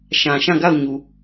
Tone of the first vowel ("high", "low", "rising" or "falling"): low